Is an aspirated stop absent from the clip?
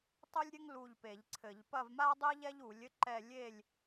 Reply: no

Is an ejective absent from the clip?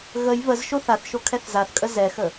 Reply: no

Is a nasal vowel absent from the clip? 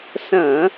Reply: no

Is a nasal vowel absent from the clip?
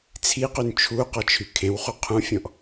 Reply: no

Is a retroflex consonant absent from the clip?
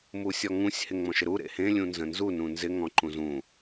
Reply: yes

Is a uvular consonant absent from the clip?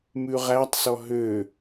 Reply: no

